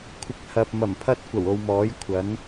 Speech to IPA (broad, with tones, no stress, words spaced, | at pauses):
kʷʰɪ˧k̚hɐ˨p̚ mɐ˨˩mpʰɐ˥t̚ kʷɐ˨˩wo˧w mɔː˨˥jkʷʰɐ˨˥n